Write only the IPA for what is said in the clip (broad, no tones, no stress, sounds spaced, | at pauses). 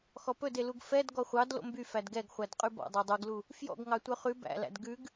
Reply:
x ɔ p ɵ d e l u ɡ f ɛ d ɡ ɔ χʷ ɑ d l o̰ m b y f æ d ɡ ɛ ɡ χʷ æ d qʼ ʉ b ɔ̰ dˤ œ dˤ y ɡ l u | f j ɔ̰ ɡ ŋ ɑ tʷ œ χ ʉ b æ̰ l æ̰ d ɡ ʉ ɡ